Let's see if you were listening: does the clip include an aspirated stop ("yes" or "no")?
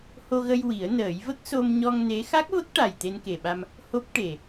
no